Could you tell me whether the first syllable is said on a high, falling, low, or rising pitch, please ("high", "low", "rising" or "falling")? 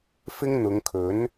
high